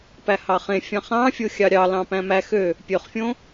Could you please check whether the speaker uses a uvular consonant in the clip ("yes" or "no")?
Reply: yes